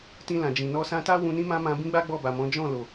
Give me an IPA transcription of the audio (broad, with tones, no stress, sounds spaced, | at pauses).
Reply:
t ĩ˧ l ã˨ d͡ʒ ĩ˨ n ɔ˧ s ã˧ t a˦ w ũ˧ n ĩ˦ m ã˦ m ã˧ b ĩ˦ ɡ͡b a˦ ɡ͡b ɔ˦˨ b a˨ m ɔ̃˨˦ d͡ʒ ɔ̃˦˨ l o˨